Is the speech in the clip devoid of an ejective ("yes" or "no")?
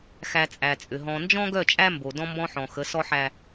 no